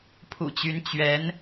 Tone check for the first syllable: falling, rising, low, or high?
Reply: low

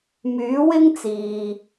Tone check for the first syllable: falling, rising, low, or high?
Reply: rising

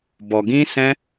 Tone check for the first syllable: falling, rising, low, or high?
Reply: low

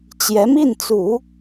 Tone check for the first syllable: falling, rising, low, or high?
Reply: rising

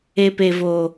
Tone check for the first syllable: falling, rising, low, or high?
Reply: low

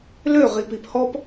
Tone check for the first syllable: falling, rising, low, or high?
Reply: falling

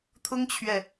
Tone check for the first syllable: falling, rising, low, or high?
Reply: high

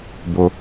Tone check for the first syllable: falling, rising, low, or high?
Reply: high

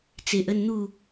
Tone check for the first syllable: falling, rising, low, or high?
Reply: low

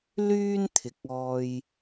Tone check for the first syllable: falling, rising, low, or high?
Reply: high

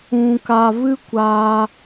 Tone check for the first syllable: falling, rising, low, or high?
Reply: low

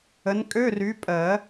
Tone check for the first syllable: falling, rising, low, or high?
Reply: rising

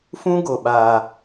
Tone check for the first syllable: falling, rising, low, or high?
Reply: high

